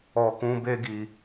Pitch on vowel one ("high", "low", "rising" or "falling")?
low